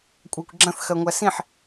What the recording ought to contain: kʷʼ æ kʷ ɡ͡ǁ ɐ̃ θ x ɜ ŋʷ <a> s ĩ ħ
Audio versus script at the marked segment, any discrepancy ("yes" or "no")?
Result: yes